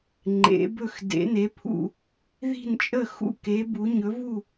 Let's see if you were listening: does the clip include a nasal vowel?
no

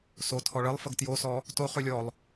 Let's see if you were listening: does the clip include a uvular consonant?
yes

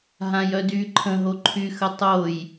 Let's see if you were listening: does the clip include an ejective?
no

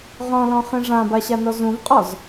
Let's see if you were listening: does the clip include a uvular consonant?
yes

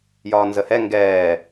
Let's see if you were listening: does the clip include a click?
no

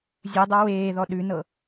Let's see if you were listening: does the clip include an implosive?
yes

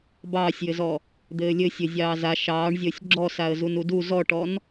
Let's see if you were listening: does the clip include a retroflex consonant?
yes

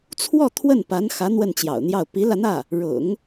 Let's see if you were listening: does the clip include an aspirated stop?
yes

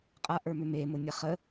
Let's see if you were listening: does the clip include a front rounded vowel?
yes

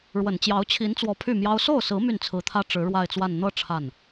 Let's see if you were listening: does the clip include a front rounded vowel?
yes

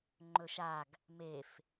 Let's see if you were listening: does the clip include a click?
yes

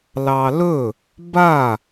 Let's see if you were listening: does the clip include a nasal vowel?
no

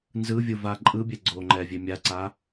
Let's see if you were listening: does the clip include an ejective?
yes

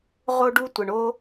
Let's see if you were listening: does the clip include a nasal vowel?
no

